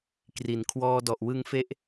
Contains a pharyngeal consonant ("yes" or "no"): no